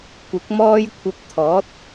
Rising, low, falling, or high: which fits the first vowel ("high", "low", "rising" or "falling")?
rising